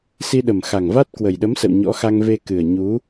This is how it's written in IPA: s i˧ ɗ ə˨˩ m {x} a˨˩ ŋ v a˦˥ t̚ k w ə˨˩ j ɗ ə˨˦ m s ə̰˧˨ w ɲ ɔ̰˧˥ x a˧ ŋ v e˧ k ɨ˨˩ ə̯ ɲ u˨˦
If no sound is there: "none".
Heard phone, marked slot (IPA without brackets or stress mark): x